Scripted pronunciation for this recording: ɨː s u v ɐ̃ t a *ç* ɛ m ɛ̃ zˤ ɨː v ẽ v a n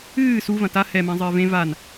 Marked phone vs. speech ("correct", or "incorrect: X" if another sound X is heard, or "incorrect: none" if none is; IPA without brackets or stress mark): incorrect: h